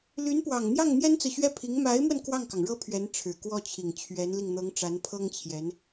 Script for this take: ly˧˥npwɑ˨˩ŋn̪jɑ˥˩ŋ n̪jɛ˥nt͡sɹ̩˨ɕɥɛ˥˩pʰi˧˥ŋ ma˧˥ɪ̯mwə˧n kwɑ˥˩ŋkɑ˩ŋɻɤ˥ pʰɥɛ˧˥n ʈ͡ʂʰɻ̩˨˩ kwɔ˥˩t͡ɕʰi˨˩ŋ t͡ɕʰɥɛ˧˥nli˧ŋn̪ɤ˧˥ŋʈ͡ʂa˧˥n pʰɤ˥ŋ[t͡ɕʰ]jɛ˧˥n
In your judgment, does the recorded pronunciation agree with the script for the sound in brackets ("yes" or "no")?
yes